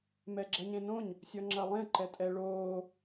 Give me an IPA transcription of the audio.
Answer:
mɛɡ͡ǁɐɲẽnõɲ | sʲɔŋ͡ǁɐlˠẽ ǃɛtʼɛ ɭoː

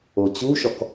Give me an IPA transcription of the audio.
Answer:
ot͡ɕuʃɔk

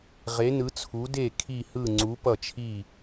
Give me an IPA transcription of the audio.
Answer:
ʁe˩˧ nɯ˩˧t͡sʰu˩˧ de˧˩ kʰi˧˩hɯ˧˩ ŋ͡ǀu˩˧pʌ˧˩t͡ʃʰi˧˩

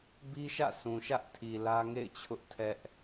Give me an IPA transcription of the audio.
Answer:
bi˦ʃä̰˦˨sʰũ˨ʃä˦ʔ tʰi˨lä˦ŋḛ˦˨ɪ̯t͡ɕʰʊ˦ʔ tʰɛ˦ʔ

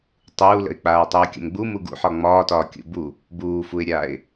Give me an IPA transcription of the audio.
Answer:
tˤuːlə̰ɪ̯ k͡paːtˤuːkʲə̰mɡ͡bu muɡṵħɒ ŋ͡mɒːtɒː kʲṵbu | buːfuɪ̯ɾʲaːɪ̯

